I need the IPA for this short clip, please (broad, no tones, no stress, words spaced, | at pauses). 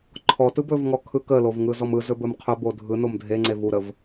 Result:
ǃʰɔtɯ bɵvŋɔ kʰɯkəlov ŋɯzɔmɯzɵ bɵmqʰɵbo dʱɯ nomdʱeŋ͡ǀe vuɾəv